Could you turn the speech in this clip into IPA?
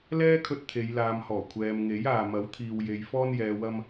l ɛː˥ kʰ ɵ˧ t̚ t̪ʰ e˨˧ j l aː˨ m h ɔː˨˩ kʷʰ ɛː˨ m ŋ e˨˥ j aː˨ m ɐ˨˥ w t̪ʰ iː˨ w j e˨ j f ɔː˧ n j ɛː˨ w ɐ˧ m

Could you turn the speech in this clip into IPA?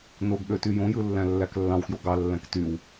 n o ɡ ɠ ø t y j õ j ɯ lː æ̃ lː æ k lː ɑ̃ w k j o ɡ ɑ lː æ̃ k t y w

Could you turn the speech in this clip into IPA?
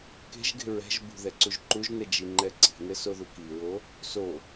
k e̤ ʒ ɡ e̤ ɹ ɛ̤ ʒ b ṳ ð ɛ ǀ u ʒ ǃ u ʒ n ɛ d͡ʒ i ŋ͡ǃ ɛ ǀ i̤ n ɘ s o ð u k i ɹ o | s o

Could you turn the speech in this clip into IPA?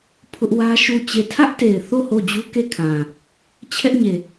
pʰ ʊ˦ ʔ w ä˦ ʃ u˦˨ t͡ɕ e˦˨ tʰ ä˦ ʔ t e˨ ɪ̯ θ o˦˨ h o˦˨ d͡ʑ u˦ k e˦˨ kʰ ã˨ | t͡ɕʰ ɛ˦ ʔ ɲ e˨

